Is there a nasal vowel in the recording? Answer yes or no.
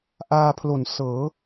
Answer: no